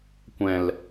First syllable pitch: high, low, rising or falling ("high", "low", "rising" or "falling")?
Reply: low